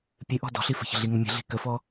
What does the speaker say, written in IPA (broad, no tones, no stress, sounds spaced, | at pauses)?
pʲ ɨ ʔ ɔ̤ d ɔ̤ ɬ i f ə̤ ç ə̤ ɮ i ŋ ʏ mʲ ə̤ ɮ i̤ k ə f ɔ